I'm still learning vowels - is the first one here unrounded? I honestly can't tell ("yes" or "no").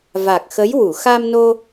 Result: yes